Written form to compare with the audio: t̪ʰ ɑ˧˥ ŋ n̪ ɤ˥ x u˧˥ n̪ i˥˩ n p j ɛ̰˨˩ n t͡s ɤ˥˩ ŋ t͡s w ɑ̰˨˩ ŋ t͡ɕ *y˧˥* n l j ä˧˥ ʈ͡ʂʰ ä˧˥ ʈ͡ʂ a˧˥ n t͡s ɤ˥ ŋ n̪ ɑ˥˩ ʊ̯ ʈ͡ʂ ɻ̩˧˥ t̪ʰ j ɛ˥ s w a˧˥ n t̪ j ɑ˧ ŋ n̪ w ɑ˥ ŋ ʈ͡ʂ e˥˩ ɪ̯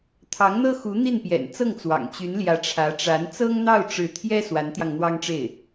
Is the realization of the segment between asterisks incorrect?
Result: no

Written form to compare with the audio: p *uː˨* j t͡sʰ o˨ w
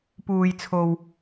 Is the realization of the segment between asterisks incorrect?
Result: no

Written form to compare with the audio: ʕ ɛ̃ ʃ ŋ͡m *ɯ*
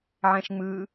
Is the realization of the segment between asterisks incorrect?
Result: no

